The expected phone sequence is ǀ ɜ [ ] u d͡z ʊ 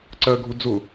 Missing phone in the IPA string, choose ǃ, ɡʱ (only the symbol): ɡʱ